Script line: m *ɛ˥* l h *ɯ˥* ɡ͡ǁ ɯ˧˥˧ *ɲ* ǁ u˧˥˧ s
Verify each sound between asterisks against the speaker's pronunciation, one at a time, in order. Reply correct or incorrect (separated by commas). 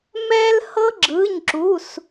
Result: correct, incorrect, correct